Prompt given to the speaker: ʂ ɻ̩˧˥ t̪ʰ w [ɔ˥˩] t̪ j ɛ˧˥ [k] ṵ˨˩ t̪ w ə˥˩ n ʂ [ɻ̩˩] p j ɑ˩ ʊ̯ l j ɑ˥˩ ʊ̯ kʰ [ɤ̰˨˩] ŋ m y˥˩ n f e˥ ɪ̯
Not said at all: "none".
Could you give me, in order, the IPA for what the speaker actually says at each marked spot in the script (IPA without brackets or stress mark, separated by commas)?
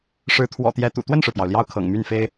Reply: ɔ̰˨˩, t̪, ɻ̩˩, ɤ̰˨˩